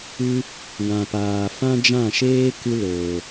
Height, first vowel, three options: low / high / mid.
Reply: high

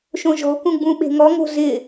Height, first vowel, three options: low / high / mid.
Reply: mid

